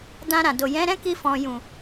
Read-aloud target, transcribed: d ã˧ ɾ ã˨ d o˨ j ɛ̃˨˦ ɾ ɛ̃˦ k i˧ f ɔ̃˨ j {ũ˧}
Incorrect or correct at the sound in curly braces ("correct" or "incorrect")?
incorrect